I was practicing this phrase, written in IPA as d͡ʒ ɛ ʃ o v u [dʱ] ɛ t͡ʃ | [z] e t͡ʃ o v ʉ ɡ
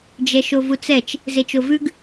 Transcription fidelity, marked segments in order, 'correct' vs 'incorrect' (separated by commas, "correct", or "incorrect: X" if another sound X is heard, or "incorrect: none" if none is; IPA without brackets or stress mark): incorrect: t͡s, correct